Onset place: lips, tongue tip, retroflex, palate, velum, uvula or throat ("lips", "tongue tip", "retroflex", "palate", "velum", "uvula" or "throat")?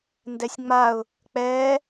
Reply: tongue tip